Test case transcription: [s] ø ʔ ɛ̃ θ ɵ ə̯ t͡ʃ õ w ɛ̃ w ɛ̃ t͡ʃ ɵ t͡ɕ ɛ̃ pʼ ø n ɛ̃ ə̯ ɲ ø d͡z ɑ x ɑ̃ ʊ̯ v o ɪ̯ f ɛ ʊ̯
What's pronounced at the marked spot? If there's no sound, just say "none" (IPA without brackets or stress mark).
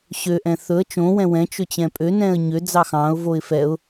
ɕ